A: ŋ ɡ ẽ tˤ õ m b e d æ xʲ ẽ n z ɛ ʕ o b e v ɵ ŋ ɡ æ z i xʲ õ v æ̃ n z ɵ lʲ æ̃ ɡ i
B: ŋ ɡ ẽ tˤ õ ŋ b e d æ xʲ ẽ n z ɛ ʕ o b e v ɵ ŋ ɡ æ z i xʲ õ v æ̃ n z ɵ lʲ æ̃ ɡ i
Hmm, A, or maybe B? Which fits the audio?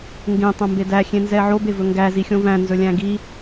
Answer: A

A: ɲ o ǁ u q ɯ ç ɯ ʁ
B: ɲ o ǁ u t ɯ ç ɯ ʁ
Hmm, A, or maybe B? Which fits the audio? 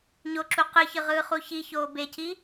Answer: A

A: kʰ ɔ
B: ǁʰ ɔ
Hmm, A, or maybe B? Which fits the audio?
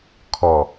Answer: A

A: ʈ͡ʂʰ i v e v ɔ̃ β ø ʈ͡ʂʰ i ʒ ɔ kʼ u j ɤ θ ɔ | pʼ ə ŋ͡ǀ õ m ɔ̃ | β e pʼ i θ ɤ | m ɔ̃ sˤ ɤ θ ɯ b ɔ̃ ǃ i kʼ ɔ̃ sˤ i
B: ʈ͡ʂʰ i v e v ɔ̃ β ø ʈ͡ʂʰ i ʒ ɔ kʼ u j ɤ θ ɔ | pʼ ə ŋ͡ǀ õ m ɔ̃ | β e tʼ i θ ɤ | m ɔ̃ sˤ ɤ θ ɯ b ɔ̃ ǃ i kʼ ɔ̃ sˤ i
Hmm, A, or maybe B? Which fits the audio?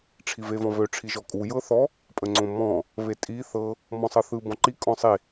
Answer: B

